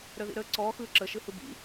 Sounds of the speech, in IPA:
ɾ əː ð ḭ ɾ əː ǀ ɔː x ɯː ǁ ə ʃ ɯ h ɯ b ḭ

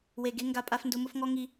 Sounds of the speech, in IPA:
w e˨ ɡ e˦ ŋ ɡ a˦ pʼ a˦ f n d ʊ˦ m ʊ˦ f ŋ ɔ˦ ŋ i˦

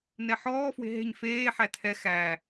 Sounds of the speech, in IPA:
n ɛ ħ ɔː f w e̤ ɦ e̤ ɲ f eː ħ æ tʰ ɛ x æ

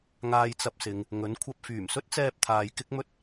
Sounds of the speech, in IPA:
ŋ aː˧ j t͡s ɐ˧ p̚ s ɪ˨˧ ŋ | ŋ ɵ˨˥ n kʷʰ ɐ˧ p̚ f yː˨˩ m s ɵ˥ t̚ t͡s ɛː˧ p̚ t̪ʰ aː˨ j k ɪ˥ k̚ m ɵ˥ t̚

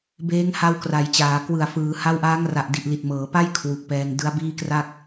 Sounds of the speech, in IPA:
b eː˦˥ ŋ h a˧ w k r a˩˦ j t͡ɕ aː˩˦ k w ɯ˨˩ a̯ f ɯː˩˦ h a˦˥ w ʔ aː˦˥ ŋ r a˨˩ ʔ d i˨˩ ʔ l i˨˩ t̚ m ɤː˩˦ p a˥˩ j kʰ w u˨˩ k̚ p ɛː˧ ŋ d ɯ˦˥ a̯ b iː˥˩ k r a˥˩ k̚

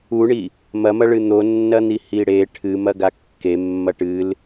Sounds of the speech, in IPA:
u ɳ i | m ɐ m ɐ ɭ ɨ n̪ o nː ɐ n̪ i h i ɽ e ʈʰ ɨ m ɐ ɡ a kː e mː ɐ ʈ ɨ l

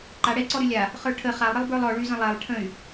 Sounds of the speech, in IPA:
ǃ a ɽ ɛ i̯ ǀ ɔ ɾ y lʲ a | χ ə˞ ʈʰ ə χ a lˠ ɾ ə lˠ b ə˞ lˠ ɔ ɭ y z ə̃ lˠ ɛ lˠ ʈʰ ə̃ y̯

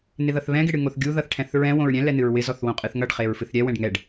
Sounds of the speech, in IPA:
n ɪ ð ʌ θ β ɛ̃ ɡ ɪ ɽ ɨ ŋ o θ ɡʲ u ð ʌ θ ʈʰ ɛ̃ θ ɹ ɛ̃ w õ ɹ ɾʲ ɛ̃ l ɛ n ɨ ɹ w ɪ z ɔ θ w õ qʼ ɨ θ ŋ ʌ ɖ χ e ɹ f ɨ θ ɾʲ ɛ w ɛ̃ ɖ ŋ ɛ ɖ

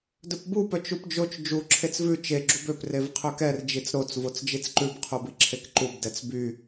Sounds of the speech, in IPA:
d ɵ p b u p œ t͡ʃ u p d͡ʒ o t͡ʃ d͡ʒ u ǁʰ e t͡s v ʉ t͡ʃ e ɡ͡ǁ u b ø p r e v qʰ ø k ɛ r d͡ʒ i t͡s ɾ o t͡s v o t͡s d͡ʒ i t͡s ǃ ʉ b qʰ u b i ǁʰ e k ǃ u b d ɛ t͡s b y

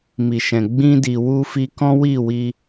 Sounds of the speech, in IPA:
m i˨ ʃ ɛ̃˨ ɡ͡b ĩ˧ d i˨ w u˧ f i˧ k ɔ̃˦ w i˦˨ w i˧

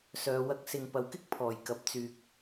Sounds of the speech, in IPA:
s œː˨˧ w ɐ˧ k̚ s ɪ˨ ŋ p ɐ˨ w k ɪ˥ k̚ pʰ ɔː˨˩ j k ɐ˨ p̚ t͡s yː˨ k̚

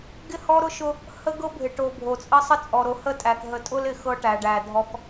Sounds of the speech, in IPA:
ɡ ɪ˦˨ h ɔ˦ ɾ ʊ˦ ʃ ʊ˦ | h ə˦ ɡ ɤ˦ bʱ ɪ˨ ʈ o˨ bʱ o˨ t͡sʼ ə˦ sˤ ə˦ t͡sʼ ɔ˨ ɾ o˨ h ə˦˨ tʼ æ˨ k ɦ ə˨ tʼ ʊ˦ l ɪ˨ x ɤ˦ ʈ æ˨ ɖ æ˨ dʱ ɔ˦ k

